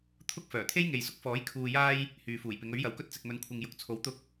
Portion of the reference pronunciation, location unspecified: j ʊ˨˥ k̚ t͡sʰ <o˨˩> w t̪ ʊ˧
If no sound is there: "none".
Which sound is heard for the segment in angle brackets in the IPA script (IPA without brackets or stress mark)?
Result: o˨˥